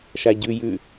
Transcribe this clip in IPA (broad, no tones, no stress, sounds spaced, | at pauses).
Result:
ʃ a ɟ ʉ j ʉ